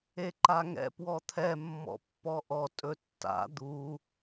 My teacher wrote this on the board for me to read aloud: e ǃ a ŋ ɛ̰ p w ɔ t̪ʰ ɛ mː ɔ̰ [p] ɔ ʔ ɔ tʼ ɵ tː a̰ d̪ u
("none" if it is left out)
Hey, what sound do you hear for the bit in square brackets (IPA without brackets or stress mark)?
pː